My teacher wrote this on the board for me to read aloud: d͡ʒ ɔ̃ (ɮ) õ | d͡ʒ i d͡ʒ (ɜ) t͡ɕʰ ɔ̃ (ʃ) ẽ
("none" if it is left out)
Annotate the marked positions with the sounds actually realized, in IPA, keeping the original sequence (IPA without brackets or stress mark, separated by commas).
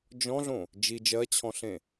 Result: ɮ, ɜ, ɬ